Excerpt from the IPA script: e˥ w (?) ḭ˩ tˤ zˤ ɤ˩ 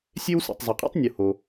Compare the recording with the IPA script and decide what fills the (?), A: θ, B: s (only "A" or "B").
B